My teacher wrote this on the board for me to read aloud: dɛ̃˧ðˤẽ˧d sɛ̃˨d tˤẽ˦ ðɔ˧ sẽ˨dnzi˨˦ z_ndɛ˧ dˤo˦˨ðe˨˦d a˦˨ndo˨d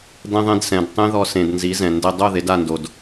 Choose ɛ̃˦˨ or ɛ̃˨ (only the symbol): ɛ̃˨